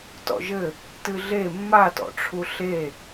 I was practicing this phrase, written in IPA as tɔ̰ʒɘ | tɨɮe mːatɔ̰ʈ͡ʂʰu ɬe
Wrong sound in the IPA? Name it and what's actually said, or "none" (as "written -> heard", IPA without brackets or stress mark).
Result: none